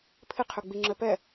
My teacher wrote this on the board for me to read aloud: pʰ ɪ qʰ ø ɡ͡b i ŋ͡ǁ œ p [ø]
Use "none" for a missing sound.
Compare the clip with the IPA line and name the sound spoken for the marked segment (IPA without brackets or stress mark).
ɛ